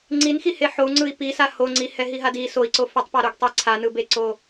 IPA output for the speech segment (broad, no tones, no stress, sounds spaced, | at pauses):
ŋ͡ǀ i n x i h e ħ o u̯ ŋ͡ǀ ɯ i̯ p i s a h o ŋ͡ǀ i h ɛ ɦ i ɦ a d i s o i̯ ǀ o f ɛ tˤ p a ɾ o ɡ tˤ i ǀʰ a n ɯ b e ǀ o